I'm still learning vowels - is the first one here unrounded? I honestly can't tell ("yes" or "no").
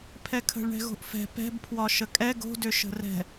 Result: yes